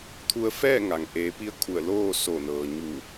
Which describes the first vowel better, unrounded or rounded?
rounded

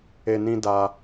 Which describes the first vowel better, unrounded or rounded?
unrounded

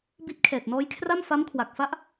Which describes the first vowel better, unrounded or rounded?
unrounded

